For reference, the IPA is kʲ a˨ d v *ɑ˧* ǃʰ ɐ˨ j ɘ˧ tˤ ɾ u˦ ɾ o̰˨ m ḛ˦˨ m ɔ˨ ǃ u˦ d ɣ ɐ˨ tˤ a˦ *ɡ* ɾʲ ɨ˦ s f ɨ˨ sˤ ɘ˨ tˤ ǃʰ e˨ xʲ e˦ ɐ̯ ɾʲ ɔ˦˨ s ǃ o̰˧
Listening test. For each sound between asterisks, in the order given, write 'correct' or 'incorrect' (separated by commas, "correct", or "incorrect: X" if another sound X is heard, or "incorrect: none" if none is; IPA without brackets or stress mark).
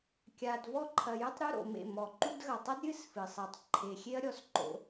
incorrect: ɔ˧, incorrect: d